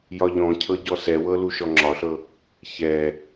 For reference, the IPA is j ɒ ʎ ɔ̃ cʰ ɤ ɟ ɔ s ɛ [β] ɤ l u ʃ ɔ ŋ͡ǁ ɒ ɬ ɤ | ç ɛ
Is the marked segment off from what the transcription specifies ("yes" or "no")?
yes